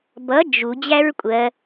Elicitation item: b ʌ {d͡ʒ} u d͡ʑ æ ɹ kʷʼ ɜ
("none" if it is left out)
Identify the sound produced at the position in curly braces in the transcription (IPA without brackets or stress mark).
d͡ʒ